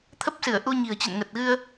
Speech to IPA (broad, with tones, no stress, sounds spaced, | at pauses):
t̪ʰ ə˦˥ p̚ s ɨ˧˩ ə̯ ʔ u˧ ɲ i̤˨˩ ə̯ t͡ɕ ə̰˧˨ n ŋ ə˨˩ t̚ ɣ ɨ˧ ə̯